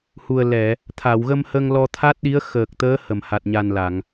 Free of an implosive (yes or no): no